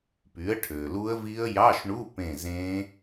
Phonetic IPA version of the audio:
py˩˥ə̯ʈʰø˩lu˦˥ə̯vi˦˥ə̯ jɑ˧˥˧ʃɳu˧˥˧pẽ˧˩ zẽ˦˥

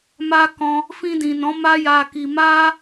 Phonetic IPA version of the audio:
ma˧ kɔ̃˧ | fĩ˧dĩ˨nɔ̃˨˦ ma˦ja˧ki˧ ma˦

